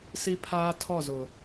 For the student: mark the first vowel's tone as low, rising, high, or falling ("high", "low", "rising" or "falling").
high